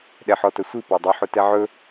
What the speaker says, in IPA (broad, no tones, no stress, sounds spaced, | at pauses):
ɗ ɛ ħ ɔ t ə sʷ i p a dˤ ə ħ ʊ t ɛ ʕ ɵ